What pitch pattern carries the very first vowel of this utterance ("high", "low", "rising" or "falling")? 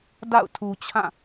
falling